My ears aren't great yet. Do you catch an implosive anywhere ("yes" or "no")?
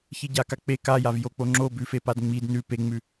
no